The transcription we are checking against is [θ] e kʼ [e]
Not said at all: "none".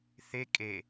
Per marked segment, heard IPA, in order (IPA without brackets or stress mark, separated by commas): θ, e